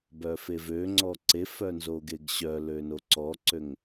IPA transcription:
b œ f e v ø ŋ͡ǀ ɔ ǀ e f œ n z o ɡ e ɡ ɕ œ l ø n o ǀ ɔ ǀ ø ŋ

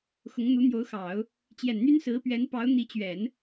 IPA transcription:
x ʊ˧˥ ŋ n̪ u˧˥ n̪ j o˧˥ ʊ̯ x ɑ˨˩˦ ʊ̯ | t͡ɕ j ɛ˨˩ n n̪ y˥ n s ɹ̩˧˥ p ɥ ɛ˧˥ n p ɑ˧˥ ʊ̯ n̪ i˧˥ t͡ɕ ɥ ɛ˨˩˦ n

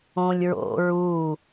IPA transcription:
õ lʲ ɹ o̰ ɹ u

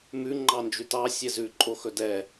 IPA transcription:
m ʉ ŋ͡ǃ ɑ n d͡ʒ ʉ t ɑ sʲ ɛ z ʉ ǃʼ o x ɵ d ɛ

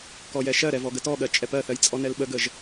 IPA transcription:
k ɔ j ɛ ʃ ɜ ɾ ɛ v ɔ ɡ ə t ɔ ɠ ɜ t͡ʃʼ ɛ p ɜ θ ɜ j t͡sʼ ɔ n ɛ l ɓ ə ɡ ə ʒ

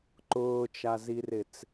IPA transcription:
ǃ ʊː t͡ʃ a z i r ɪ t͡s

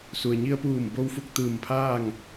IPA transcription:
s u˩ ə̯ ɲ i˧ ə̯ p uː˧˩ m b o˧ w f u˧ k̚ t̪ ɯː˧˩ m pʰ aː˥˨ ŋ

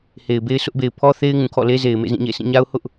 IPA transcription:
h e˨ ɪ̯ b e˦ ɪ̯ sʰ ʊ˦ ʔ b e˨ ɪ̯ pʰ ɔ˦ θ e˦ ɪ̯ ŋ ũ˨ kʰ ɔ̰˦˨ l e˦ z e˨ ɪ̯ m ḛ˦˨ z ĩ˦˨ ɲ ḛ˦˨ s ĩ˦˨ ɲ a˦ ʊ̯ h ʊ˦ ʔ

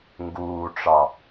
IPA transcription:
ŋ ɡ uː ʈ͡ʂ ɑ

